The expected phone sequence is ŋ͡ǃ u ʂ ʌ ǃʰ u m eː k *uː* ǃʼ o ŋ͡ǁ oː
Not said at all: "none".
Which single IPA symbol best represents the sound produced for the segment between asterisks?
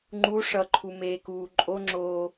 uː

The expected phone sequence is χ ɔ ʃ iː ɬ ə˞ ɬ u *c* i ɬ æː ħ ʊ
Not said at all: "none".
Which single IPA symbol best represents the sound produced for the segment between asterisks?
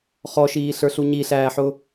ɲ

